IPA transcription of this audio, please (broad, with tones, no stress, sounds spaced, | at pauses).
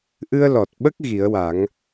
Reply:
ʔ ɨ˧ ə̯ l ɔ˨˩ t̚ ɓ ə˦˥ k̚ ɣ i˨˩˦ ə̯ w a˨˩˦ ŋ